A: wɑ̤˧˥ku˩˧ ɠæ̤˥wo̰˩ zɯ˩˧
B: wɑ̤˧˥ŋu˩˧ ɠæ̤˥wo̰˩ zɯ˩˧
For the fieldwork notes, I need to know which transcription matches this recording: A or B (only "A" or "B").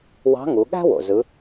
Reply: B